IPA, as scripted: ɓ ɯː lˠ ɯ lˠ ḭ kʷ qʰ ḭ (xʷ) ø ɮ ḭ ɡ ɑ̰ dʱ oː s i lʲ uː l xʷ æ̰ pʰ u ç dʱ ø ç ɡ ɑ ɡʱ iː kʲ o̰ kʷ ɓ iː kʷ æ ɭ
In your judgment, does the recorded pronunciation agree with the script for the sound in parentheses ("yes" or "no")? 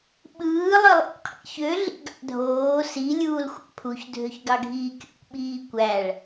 no